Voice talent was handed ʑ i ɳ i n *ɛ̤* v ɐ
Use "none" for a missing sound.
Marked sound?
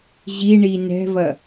ɛ̤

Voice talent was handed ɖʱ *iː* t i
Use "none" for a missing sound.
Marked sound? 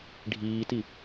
iː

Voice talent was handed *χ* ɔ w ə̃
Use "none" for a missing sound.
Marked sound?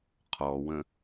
qʰ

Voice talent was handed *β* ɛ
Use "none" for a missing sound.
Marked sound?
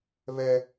β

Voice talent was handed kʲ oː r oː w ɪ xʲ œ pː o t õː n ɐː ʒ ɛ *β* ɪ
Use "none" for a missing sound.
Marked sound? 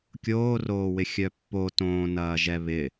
β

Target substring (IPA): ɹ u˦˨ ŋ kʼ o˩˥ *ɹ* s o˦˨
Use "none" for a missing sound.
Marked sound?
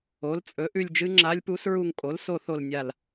l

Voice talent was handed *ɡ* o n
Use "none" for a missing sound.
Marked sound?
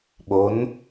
ɓ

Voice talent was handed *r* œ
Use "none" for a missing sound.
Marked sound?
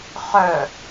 χ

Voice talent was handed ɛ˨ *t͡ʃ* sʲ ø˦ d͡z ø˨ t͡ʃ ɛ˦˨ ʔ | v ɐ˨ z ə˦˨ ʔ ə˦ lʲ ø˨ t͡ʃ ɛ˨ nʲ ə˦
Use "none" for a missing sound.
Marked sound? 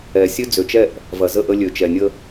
none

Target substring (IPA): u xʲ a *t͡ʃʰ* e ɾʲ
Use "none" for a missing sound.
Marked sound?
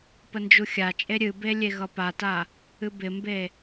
t͡ʃʼ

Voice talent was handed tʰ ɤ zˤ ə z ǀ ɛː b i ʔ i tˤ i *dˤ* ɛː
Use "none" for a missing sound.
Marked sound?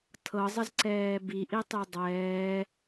dˤ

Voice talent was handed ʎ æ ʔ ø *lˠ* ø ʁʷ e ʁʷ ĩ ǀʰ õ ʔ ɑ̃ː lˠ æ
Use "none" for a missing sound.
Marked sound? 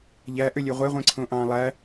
lʲ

